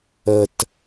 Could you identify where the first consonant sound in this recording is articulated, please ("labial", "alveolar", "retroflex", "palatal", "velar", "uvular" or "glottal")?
alveolar